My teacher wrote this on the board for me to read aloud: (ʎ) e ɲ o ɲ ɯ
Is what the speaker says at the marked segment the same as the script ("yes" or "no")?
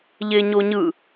yes